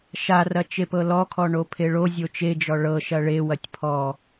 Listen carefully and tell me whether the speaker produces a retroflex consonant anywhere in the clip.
yes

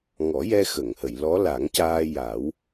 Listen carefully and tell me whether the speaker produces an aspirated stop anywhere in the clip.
no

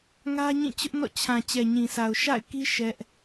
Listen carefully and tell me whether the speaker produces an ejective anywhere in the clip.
no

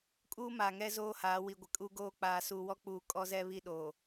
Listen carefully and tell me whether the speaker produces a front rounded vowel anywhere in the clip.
no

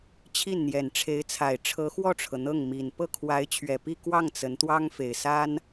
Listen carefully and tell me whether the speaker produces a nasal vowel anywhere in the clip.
no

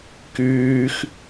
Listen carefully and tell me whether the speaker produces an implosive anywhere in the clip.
no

